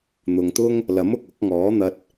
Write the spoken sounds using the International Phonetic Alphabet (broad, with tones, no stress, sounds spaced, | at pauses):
n̪ ʊ˨ ŋ t̪ ʊ˥ ŋ | l ɐ˨˥ m ʊ˨ k̚ ʊ˨˥ k̚ ŋ ɔː˨˥ n̪ ɐ˧ t̚